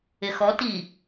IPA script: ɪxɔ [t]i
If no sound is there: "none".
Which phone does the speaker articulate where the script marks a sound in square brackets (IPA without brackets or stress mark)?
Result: t